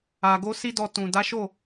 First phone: a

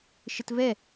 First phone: ʃ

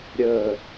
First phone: ɾʲ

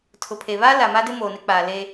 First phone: tʰ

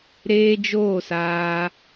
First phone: ɾ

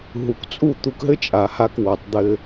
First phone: ɦ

